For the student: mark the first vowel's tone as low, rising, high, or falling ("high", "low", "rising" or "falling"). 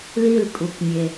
falling